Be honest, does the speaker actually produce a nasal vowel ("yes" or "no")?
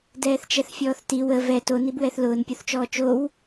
no